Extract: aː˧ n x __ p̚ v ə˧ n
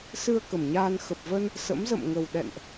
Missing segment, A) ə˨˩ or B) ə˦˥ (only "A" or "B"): A